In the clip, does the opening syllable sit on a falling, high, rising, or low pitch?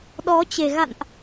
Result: rising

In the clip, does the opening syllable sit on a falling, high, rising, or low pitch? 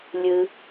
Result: low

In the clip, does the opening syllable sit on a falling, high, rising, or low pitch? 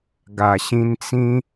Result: low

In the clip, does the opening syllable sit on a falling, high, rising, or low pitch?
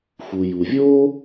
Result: low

